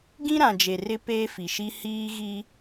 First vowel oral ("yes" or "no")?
no